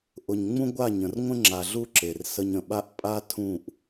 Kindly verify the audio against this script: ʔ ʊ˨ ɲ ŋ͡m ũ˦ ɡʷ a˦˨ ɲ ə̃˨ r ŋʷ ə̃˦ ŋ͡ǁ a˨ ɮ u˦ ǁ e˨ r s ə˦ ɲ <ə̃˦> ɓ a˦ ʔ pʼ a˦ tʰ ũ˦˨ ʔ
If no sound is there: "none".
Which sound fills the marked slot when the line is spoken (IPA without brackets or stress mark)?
ə̃˨